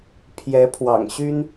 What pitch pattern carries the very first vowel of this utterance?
rising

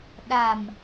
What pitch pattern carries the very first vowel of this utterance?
low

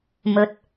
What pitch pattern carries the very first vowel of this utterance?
low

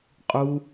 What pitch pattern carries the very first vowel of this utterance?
low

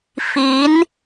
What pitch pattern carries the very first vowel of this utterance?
rising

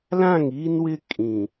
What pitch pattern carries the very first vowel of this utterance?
falling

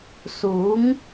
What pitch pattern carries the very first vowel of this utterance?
rising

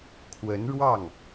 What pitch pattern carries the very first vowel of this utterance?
rising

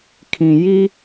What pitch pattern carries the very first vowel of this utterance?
low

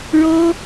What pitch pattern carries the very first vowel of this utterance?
high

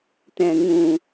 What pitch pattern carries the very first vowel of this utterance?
low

